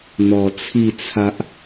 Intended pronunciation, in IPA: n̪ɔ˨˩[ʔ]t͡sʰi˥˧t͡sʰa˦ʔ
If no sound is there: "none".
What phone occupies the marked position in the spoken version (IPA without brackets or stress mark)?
none